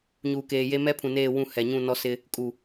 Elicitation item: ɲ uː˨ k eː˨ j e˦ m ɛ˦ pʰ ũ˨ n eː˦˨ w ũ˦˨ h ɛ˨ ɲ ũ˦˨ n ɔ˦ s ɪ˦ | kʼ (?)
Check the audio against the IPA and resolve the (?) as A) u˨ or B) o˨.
A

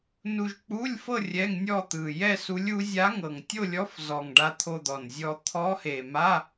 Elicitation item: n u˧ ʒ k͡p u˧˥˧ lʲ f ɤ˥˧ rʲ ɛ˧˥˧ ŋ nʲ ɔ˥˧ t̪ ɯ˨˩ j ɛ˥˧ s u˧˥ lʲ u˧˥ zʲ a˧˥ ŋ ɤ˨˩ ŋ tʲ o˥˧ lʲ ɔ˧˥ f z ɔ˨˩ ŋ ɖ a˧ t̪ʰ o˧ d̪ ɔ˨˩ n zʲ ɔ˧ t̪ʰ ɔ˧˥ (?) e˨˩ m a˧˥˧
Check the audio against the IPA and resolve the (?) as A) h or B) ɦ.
A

